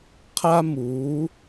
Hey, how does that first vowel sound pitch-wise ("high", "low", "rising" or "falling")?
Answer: high